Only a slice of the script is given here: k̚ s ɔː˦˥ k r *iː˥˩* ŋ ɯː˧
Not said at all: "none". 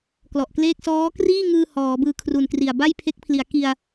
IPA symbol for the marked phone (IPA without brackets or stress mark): iː˥˩